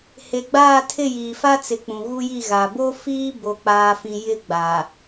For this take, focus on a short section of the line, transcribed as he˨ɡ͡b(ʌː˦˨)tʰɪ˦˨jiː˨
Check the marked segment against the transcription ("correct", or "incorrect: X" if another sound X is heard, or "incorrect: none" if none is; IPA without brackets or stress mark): incorrect: aː˦˨